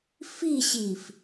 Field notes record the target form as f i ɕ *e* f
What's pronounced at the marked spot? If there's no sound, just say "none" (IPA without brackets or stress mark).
i